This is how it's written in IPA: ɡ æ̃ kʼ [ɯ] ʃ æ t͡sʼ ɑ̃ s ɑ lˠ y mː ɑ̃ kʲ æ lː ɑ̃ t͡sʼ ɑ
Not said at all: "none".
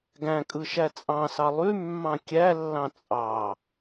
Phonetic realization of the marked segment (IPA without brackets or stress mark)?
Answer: ɯ